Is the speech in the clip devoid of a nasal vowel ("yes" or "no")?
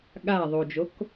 yes